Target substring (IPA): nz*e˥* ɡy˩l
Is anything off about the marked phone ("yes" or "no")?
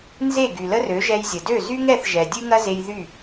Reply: yes